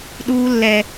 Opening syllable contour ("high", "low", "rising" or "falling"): low